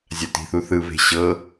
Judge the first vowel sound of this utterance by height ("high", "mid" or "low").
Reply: low